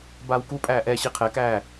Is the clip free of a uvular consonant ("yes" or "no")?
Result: no